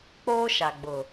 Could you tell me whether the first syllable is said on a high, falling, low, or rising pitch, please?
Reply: high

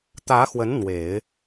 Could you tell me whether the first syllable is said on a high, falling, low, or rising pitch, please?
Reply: rising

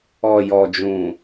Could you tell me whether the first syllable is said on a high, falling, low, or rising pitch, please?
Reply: low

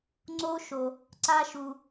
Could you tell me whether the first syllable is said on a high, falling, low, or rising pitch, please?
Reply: high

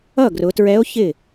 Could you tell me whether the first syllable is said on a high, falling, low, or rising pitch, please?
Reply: falling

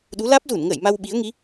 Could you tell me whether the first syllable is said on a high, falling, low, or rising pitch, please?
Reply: rising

